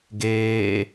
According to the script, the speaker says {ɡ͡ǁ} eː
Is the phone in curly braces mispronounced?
yes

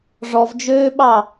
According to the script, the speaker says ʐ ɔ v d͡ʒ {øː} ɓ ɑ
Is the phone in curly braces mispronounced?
no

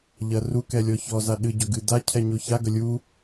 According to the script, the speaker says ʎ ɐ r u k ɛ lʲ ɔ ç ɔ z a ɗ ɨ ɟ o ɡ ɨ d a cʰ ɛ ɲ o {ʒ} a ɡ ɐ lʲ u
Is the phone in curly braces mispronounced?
yes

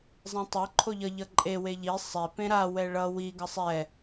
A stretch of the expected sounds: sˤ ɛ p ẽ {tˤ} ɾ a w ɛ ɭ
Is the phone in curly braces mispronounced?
yes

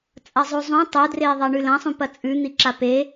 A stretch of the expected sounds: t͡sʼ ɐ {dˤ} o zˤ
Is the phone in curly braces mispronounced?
yes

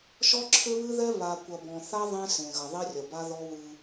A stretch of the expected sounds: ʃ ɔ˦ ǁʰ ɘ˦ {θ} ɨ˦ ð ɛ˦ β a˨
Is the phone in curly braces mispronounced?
yes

